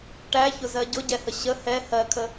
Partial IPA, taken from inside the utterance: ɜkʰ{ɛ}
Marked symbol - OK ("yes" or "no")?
no